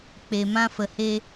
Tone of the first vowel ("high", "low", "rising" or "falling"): low